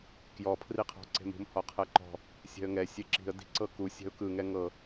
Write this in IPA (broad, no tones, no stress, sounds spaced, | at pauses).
k j ɔ pʰ r i qʰ ɔ̤ ǀ e̤ m ṳ m h ɔ qʰ ɤ ǃ ɔ̤ | sʲ ɛ̤ ə̯ ŋ ɛ sʲ e ǁ i̤ ə̯ d i̤ ǀ ɤ k u sʲ ɛ̤ ʊ̯ k ɯ ŋ ɛ ŋ ɤ